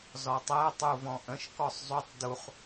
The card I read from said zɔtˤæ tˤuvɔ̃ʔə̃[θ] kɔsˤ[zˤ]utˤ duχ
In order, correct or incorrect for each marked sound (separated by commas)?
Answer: incorrect, correct